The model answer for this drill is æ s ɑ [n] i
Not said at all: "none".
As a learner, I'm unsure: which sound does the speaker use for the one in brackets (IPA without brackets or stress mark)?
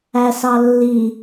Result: lː